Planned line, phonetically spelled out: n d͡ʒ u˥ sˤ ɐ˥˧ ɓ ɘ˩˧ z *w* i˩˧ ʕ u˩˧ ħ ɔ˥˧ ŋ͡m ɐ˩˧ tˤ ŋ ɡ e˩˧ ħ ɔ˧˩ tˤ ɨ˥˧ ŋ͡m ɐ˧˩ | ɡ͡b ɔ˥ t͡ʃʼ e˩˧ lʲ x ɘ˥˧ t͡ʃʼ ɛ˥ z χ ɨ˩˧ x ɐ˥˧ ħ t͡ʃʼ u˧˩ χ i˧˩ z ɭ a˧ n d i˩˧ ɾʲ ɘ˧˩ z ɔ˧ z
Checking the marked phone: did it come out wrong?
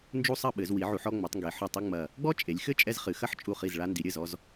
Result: no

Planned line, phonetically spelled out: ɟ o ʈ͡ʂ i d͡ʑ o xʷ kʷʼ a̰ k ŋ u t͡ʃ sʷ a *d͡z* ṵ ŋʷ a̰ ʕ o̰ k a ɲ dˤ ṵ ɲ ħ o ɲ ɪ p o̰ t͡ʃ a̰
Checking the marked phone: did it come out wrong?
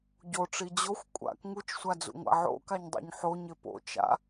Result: no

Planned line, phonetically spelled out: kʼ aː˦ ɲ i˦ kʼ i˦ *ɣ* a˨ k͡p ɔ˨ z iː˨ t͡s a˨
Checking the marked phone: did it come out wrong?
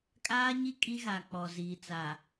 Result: no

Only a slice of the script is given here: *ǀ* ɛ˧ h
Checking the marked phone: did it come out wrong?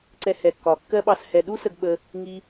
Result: no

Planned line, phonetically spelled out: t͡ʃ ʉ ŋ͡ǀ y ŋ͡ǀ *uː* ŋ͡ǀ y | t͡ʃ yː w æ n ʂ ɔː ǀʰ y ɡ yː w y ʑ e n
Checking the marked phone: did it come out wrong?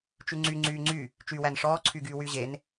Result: yes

